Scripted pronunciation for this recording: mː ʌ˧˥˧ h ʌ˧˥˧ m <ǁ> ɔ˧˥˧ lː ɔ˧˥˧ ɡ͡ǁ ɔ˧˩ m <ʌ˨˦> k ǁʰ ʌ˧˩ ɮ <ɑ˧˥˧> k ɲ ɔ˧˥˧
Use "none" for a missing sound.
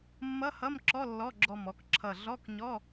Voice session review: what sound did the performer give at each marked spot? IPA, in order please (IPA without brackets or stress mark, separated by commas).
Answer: ǁ, ɔ˨˦, ɔ˧˥˧